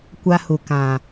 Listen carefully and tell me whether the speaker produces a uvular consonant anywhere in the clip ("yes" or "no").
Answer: no